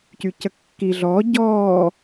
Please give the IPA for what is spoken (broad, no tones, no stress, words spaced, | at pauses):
cycəkːi ɮɔː ɟɔː